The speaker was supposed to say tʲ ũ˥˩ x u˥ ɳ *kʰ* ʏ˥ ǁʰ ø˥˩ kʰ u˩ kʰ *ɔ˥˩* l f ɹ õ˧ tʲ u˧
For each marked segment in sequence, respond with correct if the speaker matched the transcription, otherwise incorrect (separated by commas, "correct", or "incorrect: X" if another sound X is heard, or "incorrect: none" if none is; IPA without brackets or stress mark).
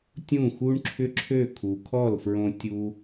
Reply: incorrect: ǁʰ, correct